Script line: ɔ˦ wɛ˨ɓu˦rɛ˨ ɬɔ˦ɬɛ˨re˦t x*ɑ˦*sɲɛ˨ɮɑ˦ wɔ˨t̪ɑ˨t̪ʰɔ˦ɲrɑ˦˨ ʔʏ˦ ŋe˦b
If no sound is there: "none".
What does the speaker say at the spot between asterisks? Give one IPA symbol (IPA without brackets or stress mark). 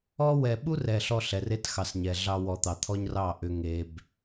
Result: ɑ˨